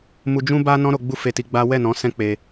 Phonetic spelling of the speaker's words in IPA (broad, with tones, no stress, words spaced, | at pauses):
mu˧d͡ʒũ˦ ba˦nɔ̃˦ ɾo˧ɡ͡bu˦fe˧ti˧ ɡ͡ba˦ wɛ˦˨ nɔ̃˨˦sɛ̃˦ k͡pe˧